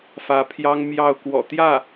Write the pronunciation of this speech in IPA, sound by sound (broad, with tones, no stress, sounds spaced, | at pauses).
f ä˧˥ pʰ j ɑ˥ ŋ m j ɑ˥˩ ʊ̯ k w ɔ̰˨˩ t̪ j ä˥˩